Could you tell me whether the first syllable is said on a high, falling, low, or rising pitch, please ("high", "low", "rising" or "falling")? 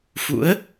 rising